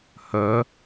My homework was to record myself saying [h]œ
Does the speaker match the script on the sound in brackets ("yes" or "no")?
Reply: yes